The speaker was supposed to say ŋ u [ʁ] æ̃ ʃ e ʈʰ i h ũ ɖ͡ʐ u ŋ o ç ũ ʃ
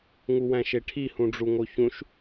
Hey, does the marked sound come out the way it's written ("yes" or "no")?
no